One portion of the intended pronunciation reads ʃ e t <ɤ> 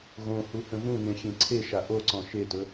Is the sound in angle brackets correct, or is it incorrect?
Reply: incorrect